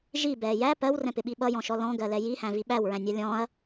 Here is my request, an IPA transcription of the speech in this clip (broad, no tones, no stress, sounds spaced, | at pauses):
ʒ i b ɛː j æ p ɜ w r ɛ̃ p ɪ ɓ i ɓ ʌ j ɔ̃ ʃ ɔ l ɔ̃ ɡ ɜ l ɛ j i h æ̃ v i ɓ æ w ɹ æ̃ nʲ ɑ lʲ ɔ̃ ɐ̯